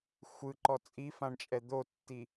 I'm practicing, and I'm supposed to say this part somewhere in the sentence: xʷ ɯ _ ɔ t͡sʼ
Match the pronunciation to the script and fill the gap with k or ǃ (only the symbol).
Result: ǃ